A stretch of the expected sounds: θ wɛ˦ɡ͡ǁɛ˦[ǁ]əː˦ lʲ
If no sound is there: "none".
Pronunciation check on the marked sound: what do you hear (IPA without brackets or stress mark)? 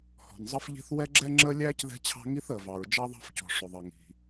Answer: ŋ͡ǁ